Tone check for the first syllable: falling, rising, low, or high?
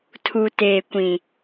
low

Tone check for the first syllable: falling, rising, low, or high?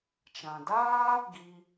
low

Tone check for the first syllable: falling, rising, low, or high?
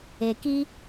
low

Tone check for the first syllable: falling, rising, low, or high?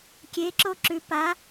rising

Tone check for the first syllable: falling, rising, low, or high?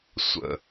low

